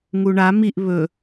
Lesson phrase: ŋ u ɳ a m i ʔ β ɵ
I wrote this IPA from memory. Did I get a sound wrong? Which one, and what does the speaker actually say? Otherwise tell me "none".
none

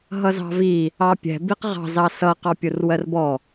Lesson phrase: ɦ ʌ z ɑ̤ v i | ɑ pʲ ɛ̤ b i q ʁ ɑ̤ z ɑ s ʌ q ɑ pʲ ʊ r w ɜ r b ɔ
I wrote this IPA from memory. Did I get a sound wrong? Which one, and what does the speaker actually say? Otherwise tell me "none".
none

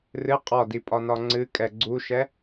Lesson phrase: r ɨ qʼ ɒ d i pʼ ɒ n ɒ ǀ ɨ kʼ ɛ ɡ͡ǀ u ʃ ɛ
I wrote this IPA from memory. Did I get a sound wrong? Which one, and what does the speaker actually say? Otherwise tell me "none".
ǀ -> ŋ͡ǀ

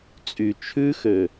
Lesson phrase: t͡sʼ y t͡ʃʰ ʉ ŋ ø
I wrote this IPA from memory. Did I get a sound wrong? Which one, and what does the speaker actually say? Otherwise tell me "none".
ŋ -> x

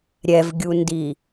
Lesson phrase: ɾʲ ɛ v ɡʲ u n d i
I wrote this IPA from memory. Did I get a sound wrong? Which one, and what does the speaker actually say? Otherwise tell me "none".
none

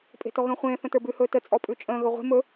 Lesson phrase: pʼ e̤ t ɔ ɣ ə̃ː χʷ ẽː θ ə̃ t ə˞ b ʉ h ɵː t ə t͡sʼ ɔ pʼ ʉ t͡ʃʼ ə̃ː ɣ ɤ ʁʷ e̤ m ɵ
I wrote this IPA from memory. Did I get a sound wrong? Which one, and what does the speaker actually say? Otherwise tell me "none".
ɤ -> ɵ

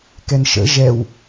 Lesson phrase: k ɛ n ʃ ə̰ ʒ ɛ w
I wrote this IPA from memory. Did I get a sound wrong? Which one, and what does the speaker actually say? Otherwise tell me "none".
none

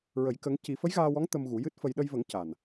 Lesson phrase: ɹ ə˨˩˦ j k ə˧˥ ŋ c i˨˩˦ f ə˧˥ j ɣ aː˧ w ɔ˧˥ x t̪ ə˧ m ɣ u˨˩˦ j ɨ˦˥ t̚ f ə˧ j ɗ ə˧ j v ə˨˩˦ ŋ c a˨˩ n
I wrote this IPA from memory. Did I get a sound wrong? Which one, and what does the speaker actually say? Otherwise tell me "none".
x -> ŋ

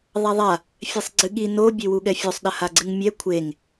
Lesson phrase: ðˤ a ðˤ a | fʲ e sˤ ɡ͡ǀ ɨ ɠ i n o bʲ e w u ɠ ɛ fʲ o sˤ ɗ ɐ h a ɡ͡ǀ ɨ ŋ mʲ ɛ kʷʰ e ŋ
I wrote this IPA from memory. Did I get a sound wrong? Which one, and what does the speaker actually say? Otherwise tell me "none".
none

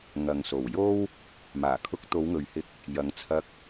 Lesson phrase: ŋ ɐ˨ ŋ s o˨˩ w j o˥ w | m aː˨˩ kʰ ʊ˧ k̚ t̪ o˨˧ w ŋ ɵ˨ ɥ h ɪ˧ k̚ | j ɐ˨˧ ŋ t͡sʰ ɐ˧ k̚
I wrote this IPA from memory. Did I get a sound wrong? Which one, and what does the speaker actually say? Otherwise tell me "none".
none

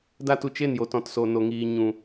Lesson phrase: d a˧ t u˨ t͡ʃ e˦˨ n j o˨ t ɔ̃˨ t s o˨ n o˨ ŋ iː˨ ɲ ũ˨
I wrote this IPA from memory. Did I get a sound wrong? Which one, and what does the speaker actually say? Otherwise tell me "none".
none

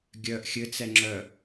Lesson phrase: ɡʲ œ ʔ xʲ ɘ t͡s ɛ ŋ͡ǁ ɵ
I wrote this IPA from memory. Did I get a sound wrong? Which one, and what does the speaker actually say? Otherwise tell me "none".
ɵ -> œ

